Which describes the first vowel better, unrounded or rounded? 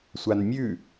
unrounded